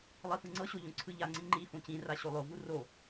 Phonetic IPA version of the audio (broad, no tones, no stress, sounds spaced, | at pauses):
lˠ i f ɯ ŋ͡ǀ ɤ ɕ o ʎ õ ǀʰ ɯ ʎ a ŋ͡ǀ ĩ ŋ͡ǃ i f õ c ĩ r a ɕ o lˠ o v u r o